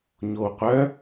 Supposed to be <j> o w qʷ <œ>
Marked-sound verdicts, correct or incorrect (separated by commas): incorrect, correct